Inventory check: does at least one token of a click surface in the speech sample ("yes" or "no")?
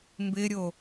no